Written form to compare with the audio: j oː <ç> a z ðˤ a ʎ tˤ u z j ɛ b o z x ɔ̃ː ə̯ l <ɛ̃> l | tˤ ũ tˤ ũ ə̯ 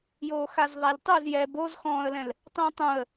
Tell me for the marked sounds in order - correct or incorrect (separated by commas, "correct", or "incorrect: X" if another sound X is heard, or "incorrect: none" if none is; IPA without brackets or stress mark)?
incorrect: x, correct